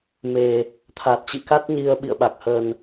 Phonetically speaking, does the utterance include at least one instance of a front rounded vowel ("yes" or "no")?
no